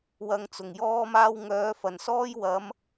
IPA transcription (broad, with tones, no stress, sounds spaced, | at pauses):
w ɐ˧ ŋ t͡s ʊ˨˩ ŋ j ɔː˥ m aː˥ w ŋ œː˨˧ f ɐ˨˩ n s ɔː˥ j w ɐ˨˧ m